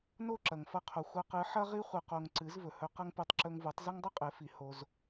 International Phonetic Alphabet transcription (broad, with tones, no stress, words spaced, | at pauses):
no˦˨ǁɐ˨ŋfɐ˧qʰo˨ xʷɐ˧qɨ˨˦ħɐ˦ ʁi˧χʷɨ˨qo˨ŋ ǀɨ˨˦zvɵ˨hɵ˧qɐ˦ŋ pʉ˧tˤǁɵ˧ŋvu˨˦tˤ zɐ˦ŋdˤɨ˦qʼe˨˦ fi˧ho˦z